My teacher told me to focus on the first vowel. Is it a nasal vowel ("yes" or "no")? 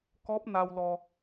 no